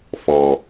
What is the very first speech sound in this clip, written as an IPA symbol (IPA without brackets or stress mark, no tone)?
f